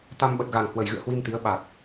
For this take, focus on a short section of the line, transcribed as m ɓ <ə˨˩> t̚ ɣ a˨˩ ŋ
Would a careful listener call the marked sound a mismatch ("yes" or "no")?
no